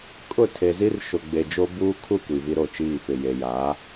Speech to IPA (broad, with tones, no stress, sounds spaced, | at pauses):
kʼ ʊ˦˨ tʰ e˨ z i˦ r ʃ ʊ˨ ɡ͡b e˨ d͡ʒ o˦ b uː˦ kʰ u˦˨ kʷ i˨ v i˦ ɾ o˦˨ t͡ʃ iː˦˨ f ɪ˨ j e˨ j aː˨˦